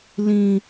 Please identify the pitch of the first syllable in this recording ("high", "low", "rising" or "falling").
high